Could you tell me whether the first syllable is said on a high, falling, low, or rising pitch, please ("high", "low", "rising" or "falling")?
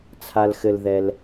low